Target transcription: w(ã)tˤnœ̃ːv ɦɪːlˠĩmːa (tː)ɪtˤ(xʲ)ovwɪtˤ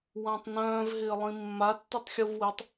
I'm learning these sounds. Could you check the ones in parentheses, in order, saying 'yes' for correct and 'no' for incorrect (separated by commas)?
yes, yes, yes